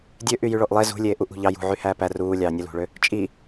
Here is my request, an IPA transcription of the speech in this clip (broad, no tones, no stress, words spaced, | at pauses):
dʲø ʔyjyɭoʔlˠe zṳ lʲeːʔuʔṳ ʎɑjṳ ʕyhæːpæ ruːlʲɑː nʲolṳɭø | t͡ʃʼi